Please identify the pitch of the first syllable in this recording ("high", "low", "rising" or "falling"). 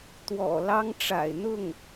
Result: low